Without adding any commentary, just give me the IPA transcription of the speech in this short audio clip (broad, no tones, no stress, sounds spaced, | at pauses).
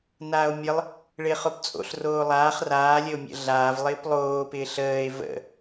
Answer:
n aː o̯ mʲ ə lˠ | ɭ ɪː χ o p t͡sʼ o̰ ɬ r oː lˠ aː χ r aː lʲ ə o̯ mʲ ə̰ ɮ aː v lˠ ɪː p lˠ oː p ɪː ɬ əː e̯ v ə̰